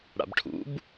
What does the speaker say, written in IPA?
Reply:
ɽa̰bʈʰṵb

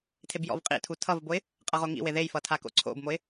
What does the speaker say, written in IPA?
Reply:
tʰebjɔ̰vqʼḭtʰu tʰʌvboɪ̯ | qʼʌʁoŋḭwe ðejfʌ tʰako̰ǀʰo̰bmoɪ̯

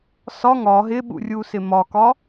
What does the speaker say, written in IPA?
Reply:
sɒ ŋɒ ɦɪɓṵrʲusɪ mɒkɒ

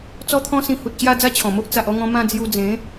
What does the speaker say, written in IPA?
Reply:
t͡sɔ˦t̪ʰɔ̃˦sĩ˧ hu˨t̚ɕja˥˧ d͡za˦t͡ɕʰɔ̃˨˩mo˦ʔ t͡sa˨ʔɔ˧ŋɔ̃˧ mã˥˧d͡zju˧ d͡zẽ˨˦

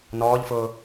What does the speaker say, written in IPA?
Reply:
nɔːʎfʊː

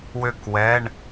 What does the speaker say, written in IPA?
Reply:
wʏ˥˨kwɛ˧˥˧ɳ

